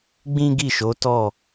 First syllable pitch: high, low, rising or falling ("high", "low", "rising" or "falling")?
high